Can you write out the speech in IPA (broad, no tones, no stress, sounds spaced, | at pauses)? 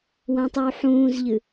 w ã tˤ ʉ w ħ ũː z ʎ ɨ